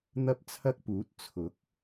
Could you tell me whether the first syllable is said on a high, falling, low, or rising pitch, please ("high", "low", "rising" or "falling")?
high